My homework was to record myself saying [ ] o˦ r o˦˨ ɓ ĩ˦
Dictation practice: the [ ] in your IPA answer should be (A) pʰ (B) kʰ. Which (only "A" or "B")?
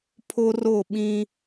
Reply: A